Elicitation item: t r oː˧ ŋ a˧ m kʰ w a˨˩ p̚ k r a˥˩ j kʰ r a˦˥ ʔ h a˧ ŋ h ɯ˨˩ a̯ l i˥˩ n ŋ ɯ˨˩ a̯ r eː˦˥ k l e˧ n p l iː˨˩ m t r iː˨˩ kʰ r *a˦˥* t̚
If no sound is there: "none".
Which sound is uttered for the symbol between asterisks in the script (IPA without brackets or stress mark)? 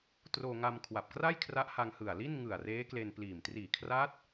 a˦˥